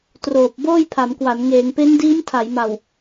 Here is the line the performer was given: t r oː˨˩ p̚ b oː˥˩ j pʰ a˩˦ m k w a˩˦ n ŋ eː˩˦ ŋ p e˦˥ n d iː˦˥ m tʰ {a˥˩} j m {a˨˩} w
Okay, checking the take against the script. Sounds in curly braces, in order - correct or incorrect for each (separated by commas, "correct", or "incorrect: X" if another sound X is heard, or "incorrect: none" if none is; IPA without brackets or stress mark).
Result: incorrect: a˩˦, correct